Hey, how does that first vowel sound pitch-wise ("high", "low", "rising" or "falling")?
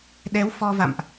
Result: rising